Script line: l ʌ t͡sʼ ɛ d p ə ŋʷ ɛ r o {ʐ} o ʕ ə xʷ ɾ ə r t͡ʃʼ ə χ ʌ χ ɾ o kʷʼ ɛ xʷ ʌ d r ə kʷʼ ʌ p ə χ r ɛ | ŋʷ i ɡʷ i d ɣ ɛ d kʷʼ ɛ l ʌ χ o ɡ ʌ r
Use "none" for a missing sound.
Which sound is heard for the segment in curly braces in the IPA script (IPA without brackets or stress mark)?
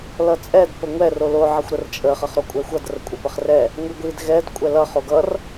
l